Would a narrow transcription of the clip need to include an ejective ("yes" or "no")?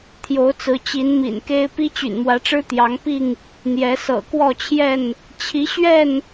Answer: no